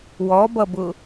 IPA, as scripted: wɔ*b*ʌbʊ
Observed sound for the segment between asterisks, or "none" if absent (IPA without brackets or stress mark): b